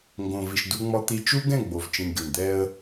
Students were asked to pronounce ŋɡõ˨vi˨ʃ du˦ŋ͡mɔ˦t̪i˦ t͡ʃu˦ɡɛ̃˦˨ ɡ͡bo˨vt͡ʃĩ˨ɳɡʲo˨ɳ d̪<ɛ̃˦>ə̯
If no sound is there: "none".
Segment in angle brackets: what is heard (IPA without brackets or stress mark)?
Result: ɛ˦